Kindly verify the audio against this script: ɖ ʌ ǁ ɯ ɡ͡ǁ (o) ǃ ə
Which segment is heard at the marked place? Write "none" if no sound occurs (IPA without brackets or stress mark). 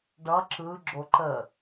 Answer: o